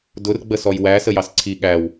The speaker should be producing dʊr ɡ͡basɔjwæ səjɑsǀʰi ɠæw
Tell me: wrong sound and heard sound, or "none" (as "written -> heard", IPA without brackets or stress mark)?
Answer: a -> ə